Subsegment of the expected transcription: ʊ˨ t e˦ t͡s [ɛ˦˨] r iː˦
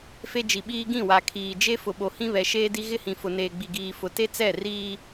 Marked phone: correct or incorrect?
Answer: correct